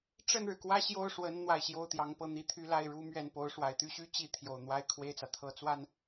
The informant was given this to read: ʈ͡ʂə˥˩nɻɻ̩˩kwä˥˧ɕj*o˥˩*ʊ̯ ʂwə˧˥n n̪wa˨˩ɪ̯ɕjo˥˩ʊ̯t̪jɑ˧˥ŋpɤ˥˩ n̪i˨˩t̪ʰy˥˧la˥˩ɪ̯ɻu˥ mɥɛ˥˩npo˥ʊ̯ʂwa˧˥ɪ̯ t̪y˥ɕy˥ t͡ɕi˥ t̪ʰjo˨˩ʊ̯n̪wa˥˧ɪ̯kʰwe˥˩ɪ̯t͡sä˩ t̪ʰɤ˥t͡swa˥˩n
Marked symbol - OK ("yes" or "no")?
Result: yes